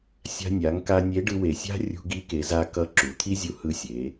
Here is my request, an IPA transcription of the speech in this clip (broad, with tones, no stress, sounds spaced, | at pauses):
sʲ a̤˧ nʲ a˩˧ ŋ k a˧ nʲ e˧˥ ɖ ɯ˧ w e˩ sʲ a̤˥ rʲ ṳ˧ ɡ i˧˥ k e˩˧ z a˧ k ʌ˧ ǁ u˩ t̪ʰ i˥ zʲ u˧ h ɯ˧ sʲ e˩˧